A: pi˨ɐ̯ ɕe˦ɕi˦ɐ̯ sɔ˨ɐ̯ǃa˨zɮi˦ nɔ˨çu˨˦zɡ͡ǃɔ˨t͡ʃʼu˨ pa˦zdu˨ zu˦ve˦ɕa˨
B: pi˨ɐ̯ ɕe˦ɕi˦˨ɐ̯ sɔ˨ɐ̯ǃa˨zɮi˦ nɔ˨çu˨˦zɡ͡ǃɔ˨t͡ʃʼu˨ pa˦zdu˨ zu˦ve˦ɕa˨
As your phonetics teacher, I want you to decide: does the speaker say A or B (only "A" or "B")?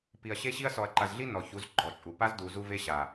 A